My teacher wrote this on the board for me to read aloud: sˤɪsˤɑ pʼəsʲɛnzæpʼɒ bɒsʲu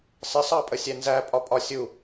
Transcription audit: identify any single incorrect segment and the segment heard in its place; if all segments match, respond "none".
b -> pʼ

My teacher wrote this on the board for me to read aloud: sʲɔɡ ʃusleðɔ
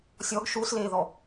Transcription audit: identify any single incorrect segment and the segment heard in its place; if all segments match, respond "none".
none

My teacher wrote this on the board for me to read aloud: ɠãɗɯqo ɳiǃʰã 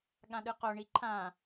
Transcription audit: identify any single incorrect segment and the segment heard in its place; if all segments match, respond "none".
none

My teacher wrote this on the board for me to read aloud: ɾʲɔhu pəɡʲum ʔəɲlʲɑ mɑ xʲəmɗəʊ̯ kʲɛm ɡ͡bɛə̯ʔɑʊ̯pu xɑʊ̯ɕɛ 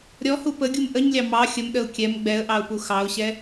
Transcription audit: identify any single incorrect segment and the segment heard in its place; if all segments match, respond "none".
none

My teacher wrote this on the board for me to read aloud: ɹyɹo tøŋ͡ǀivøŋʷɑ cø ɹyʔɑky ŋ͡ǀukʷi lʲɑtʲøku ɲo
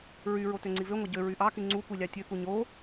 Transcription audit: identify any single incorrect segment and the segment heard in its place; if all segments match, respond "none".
c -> ɟ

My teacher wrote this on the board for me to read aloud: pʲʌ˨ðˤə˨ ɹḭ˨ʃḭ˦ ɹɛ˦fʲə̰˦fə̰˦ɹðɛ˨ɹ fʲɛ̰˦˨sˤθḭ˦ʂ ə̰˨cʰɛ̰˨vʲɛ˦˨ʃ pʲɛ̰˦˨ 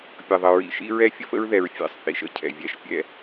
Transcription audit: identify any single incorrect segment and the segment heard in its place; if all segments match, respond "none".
ʂ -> ʃ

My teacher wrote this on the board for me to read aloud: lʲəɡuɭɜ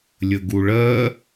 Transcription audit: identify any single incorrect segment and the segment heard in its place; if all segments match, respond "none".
none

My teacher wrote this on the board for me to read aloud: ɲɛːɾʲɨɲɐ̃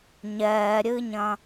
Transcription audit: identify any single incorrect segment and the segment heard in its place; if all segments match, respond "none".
none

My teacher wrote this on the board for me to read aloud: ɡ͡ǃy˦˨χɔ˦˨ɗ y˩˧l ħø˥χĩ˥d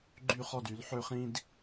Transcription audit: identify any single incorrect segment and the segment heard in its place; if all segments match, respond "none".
ɗ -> d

